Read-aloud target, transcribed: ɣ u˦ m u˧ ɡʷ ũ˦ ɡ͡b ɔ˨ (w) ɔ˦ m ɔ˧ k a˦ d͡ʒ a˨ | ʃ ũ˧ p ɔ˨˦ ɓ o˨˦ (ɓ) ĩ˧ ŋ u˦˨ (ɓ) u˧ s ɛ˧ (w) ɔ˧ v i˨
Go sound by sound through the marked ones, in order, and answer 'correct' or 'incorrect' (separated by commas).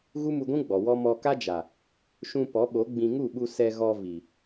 correct, incorrect, correct, incorrect